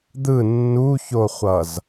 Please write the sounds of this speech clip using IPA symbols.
d̪ɯ nːuçoχʷʌz

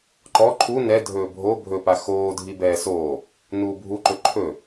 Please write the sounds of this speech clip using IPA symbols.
ǃɔ ǃʰu nɛ dʱɵːbʱo bʱɵpa xoː dʱibɛːsoː | nuːbʱuǃɵ ǃʰɵ

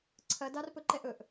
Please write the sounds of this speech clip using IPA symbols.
ǀʰɐdɑr pɵǃɛʔɵʔ

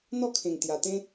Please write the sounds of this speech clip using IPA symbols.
n̪ɔ˥˧kʰẽ˨˩ŋt̪ja˨˩t̪ẽ˦

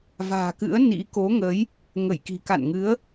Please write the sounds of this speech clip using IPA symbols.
va̤ː˨˩kɨ̰˧˥ə̯ nḭ˧˥ko˨˦ŋə˨˦j | ŋə˧˩jki̤˨˩ka̰ː˧˨nŋɨ˨˦ə̯

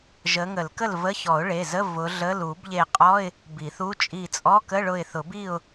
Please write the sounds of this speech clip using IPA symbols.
ʒə˨˦ŋə˨˩˦lkə˥˨lvə˧˥˧ çɔ˨˩˦ʊ̯ɭe˩˧˩zə˧˥˧ vʊ˨˦ɮə˧˥˧l u˨˩˦bʎe˧˩qʼɔ˧˥˧ɪ̯ | bi˨˩˦θu˧˥˧ t͡ʃʼi˧˩t͡sʼɔ˧˥˧ kə˧˥˧ɭʊ˧˩ɪ̯ θʊ˨˩˦bi˥˨ʊ̯

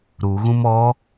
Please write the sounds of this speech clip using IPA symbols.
ɾuɣũm ɔ

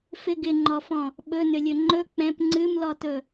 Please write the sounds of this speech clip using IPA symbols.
fɪ ɡɪŋ͡ǃɔfɔ̃ | ɓɵnʏlʲɵ ŋ͡ǃɵ k͡pɛ̃p ŋ͡ǀɨmlɔtɵ

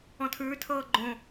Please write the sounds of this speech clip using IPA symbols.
ɔ̃tʰʉːtʰɤː ɡ͡ǃõ

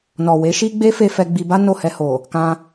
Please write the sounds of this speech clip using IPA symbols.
nɔ˨we˨˦ʃi˦ɡ͡be˦ fe˦ fɛ˧ɡ͡bi˧ba˦ no˦˨hɛ˧ho˨ | kã˧

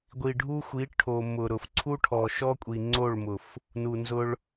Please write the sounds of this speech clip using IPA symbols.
ɡʷi˨ ɖʱu˦xʷi˨˦ ʈʰo˨ mʊ˨ ɾʊ˨fǀʰu˦ ʈʰɔ˨ʃɔ˦kʷʼi˨ ŋ͡ǀo˦˨ɭmʊ˨f | nu˨nzʊ˧ɭ

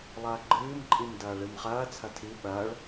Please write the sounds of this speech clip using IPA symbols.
lˠɐːɡ͡ǃɨːm ǃʼimdɐːɭɨmχɐː t͡sʰɐtʰi ɓɐːɭ

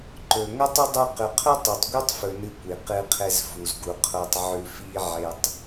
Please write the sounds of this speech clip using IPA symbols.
ǃɵ˨ ŋo˦tˤɵ˦ dˤʉ˧ qʉ˨qʰɵ˦tˤu˨tˤ ɡʷe˦tˤfɵ˨nɨ˨˦ kʷi˨ qɨ˧qʰe˧z fu˨zɡu˨ qʰo˧tˤʕʉ˧fi˦ ʕe˧tˤ

